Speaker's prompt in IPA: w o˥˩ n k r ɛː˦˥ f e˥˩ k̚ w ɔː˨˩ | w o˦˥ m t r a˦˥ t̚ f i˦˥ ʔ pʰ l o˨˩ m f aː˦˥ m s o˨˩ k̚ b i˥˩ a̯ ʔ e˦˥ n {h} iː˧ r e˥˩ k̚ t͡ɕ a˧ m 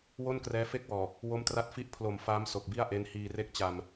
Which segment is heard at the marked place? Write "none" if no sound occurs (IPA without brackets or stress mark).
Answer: h